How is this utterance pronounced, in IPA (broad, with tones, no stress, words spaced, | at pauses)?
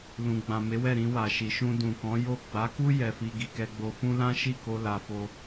lũ˨ɡ͡bã˨ me˨˦wɛ˦˨ ɾĩ˧wa˨ʃi˨ʃũ˧ dũ˨kɔ̃˨˦jo˦˨ ɡ͡ba˨˦ku˦ jɛ˧fi˧ ɡi˨kɛ˧ɡ͡bo˧fũ˦ lã˦ʃi˦˨ko˧ la˧fo˧